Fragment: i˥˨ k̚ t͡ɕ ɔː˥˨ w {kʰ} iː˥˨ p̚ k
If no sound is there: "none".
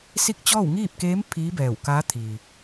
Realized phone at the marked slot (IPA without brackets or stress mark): ŋ